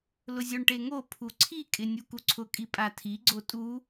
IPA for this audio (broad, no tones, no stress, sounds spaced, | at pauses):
l ʊ zʲ o ɳ ʈ e ŋ o pʰ u ǀʰ i kʼ ɪ nʲ u k u ǀʰ ʊ kʼ i pʼ a tʰ i ɡ͡ǀ o tʼ u